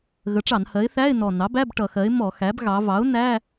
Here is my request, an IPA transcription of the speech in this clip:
ɣ ə˩˥ ʈ͡ʂ ɑ˧˩˧ n h ɜ˩˥ ɪ̯ θ æ˧˥˧ ɪ̯ n ɔ˨˩ n ɑ˩˥ b æ˧˥˧ b ʈ ʌ˧˩˧ x ɜ˩˥ ɪ̯ m ɔ˧˩˧ x æ˩˥ b ɣ ɑ˩˧ v ɑ˩˥ ʊ̯ n æ˧˥˧

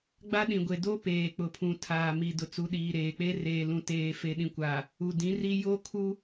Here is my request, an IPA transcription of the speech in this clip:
ɡ͡b a˦ ɗ ĩ˨ ɡʷ e˨ d o˦ p eː˨ k͡p ʊ˨ pʰ ũ˨ tʰ aː˨ m i˨ d ʊ˨ t͡s u˨ ɗ iː˨ ɾ eː˨ k͡p e˦ r eː˨ l ũ˨ t eː˨ f e˨ ɗ ĩ˨ kʷ a˨ | u˨ d ĩ˨˦ r i˦ j o˦ kʰ u˦

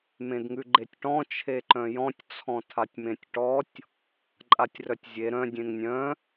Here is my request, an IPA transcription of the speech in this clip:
m ẽ d ŋ ʉ ɡ͡ǃ e tʲ ʈ ɔ̃ t͡ʃʰ e ǃ œ̃ j ɔ̃ tʲ t͡sʰ ɔ̃ tʰ a tʲ m ẽ tʲ ʈ ɔ tʲ | ǃʼ a tʲ r œ tʲ zʲ e ɾ œ̃ dʲ ẽ ŋ nʲ œ̃

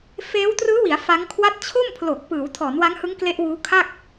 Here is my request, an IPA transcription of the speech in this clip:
f eː˦˥ w t r ɯː˦˥ w i˩˦ a̯ f a˦˥ ŋ kʰ w a˦˥ t̚ t͡ɕʰ o˥˩ m pʰ l o˨˩ k̚ p ɯː˩˦ w tʰ ɔː˩˦ n w a˦˥ ŋ h ɯ˦˥ ŋ k l e˦˥ ʔ w uː˦˥ kʰ a˥˩ k̚

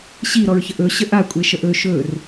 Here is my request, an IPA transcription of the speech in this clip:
ɕ i ɾ ɔ ɹ ç ə ʔ ɵ ɕ ə ʔ a kʷʼ e ʃ ə ʔ ɵ ʃ ɵ r

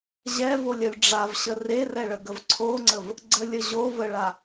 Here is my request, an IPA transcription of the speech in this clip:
ʑ ɛ v o lʲ ɐ lʲ ɖ͡ʐ a v ɕ ə r e r ɛ ɭ ə ɡ ə v ǀʰ o ŋ͡ǀ ə v | ɡ͡ǀ ə lʲ ə ʑ o v ə ɭ a

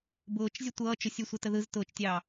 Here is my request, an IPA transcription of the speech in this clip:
b ʊː t͡ʃ zʲ ə tʷ ʌː t͡ʃ ʊ sʲ ɯ sʷ ɛ t ə ð ɯ z t ʊː t͡ʃ tʲ ɑː

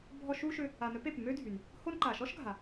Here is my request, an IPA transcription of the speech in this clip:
bʱ ɔ˦ ʃ u˥ ʃ ʏ˦ | a˨ n œ˦ p e˩ p m ø˦ dʱ y˩ n | h o˦ n ǃ a˩ ʃ ɔ˥ ʃ ɡʱ a˩

